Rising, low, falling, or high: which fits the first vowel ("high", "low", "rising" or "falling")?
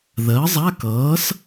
rising